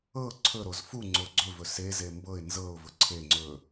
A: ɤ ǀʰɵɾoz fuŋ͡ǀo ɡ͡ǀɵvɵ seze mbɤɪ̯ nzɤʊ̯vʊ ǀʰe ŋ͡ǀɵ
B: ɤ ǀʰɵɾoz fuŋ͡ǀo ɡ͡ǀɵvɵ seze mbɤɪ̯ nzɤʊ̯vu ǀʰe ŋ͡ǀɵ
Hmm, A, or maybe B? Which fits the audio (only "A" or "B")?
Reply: A